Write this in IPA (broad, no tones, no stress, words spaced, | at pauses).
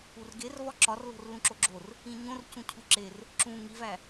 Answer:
urɡervɒ ǁɒrlo̤r lũǁoɡ͡ǁor | ĩɲõrcũ cʰuǁer | ǁũ ŋivæ